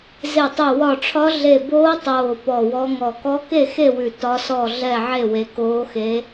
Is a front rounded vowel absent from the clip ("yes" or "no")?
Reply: yes